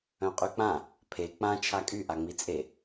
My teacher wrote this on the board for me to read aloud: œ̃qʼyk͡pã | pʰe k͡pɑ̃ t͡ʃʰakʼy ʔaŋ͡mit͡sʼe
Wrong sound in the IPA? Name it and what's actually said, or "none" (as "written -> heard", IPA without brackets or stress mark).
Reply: ɑ̃ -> ã